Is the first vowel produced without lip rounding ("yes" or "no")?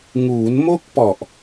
no